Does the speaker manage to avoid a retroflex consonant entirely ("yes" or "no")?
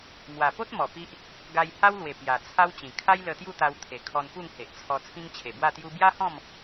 yes